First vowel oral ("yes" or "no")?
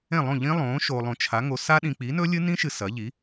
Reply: no